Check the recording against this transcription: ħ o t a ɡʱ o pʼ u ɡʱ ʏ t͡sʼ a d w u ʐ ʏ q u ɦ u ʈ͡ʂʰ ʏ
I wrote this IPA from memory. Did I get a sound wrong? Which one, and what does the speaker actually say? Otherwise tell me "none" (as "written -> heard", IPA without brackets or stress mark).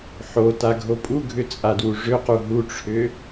none